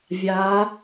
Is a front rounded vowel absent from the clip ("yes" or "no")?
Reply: yes